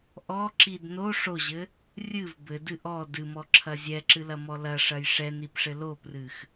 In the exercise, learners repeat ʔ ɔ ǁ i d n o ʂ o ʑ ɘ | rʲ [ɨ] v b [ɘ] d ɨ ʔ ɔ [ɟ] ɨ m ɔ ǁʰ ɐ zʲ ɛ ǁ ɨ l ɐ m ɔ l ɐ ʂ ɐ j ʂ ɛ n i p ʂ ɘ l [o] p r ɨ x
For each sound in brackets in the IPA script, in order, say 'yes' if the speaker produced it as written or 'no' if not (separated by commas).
yes, yes, no, yes